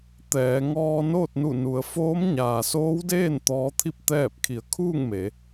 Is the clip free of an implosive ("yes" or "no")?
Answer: yes